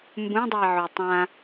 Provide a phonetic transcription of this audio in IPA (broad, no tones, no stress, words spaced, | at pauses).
mbũdˤui̯ʕo tˤã